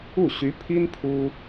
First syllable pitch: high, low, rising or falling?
falling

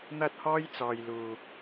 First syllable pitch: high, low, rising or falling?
high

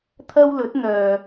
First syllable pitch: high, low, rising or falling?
high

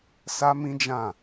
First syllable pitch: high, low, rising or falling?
high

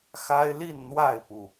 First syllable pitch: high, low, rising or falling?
high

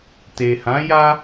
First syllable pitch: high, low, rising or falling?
low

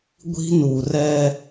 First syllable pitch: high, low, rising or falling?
high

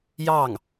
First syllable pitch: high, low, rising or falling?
falling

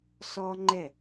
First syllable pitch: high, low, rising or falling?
high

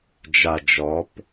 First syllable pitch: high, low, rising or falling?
low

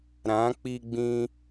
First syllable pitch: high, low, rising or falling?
rising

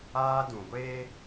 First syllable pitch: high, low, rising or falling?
high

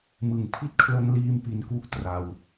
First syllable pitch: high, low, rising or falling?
low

